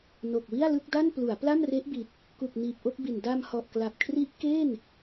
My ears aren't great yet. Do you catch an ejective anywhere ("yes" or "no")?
no